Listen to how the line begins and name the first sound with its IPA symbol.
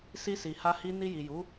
s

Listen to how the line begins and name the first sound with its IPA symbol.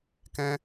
k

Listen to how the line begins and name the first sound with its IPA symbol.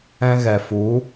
ɛ̃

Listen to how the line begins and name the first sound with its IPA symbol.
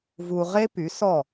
v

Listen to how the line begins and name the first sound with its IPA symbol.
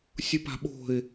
sʲ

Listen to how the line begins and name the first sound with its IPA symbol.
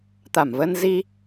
t̪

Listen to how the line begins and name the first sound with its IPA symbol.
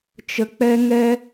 t͡ʃ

